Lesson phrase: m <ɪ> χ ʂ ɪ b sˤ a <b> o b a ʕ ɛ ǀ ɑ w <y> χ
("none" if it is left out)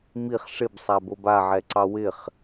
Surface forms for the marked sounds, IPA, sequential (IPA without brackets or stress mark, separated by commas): i, b, ɪ